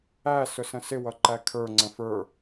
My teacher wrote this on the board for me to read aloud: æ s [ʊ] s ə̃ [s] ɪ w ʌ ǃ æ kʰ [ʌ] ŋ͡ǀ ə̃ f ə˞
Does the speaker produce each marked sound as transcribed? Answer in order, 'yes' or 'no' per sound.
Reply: yes, yes, no

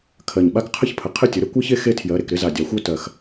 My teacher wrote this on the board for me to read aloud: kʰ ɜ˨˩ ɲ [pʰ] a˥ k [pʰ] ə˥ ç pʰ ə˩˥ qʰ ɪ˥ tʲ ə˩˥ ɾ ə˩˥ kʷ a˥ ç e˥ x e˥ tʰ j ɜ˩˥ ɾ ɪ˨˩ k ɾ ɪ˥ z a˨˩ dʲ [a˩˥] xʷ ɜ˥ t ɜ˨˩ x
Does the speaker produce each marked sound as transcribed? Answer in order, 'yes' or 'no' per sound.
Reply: no, no, yes

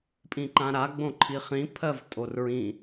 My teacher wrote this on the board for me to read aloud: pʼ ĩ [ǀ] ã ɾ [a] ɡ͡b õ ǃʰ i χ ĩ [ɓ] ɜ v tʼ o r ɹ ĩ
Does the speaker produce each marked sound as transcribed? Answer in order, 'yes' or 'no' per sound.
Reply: no, yes, no

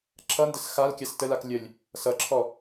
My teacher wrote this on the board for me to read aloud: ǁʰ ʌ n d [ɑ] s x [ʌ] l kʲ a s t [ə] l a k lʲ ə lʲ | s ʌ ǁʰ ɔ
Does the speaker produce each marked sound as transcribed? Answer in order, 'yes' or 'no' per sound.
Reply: no, no, yes

